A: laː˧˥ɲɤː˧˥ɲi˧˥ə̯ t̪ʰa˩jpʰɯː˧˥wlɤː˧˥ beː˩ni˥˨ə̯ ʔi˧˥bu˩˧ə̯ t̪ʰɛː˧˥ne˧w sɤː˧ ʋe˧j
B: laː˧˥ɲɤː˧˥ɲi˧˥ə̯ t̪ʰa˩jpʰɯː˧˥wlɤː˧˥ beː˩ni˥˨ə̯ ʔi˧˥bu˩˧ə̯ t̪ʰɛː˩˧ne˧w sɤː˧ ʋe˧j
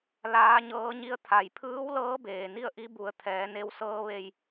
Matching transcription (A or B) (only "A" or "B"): B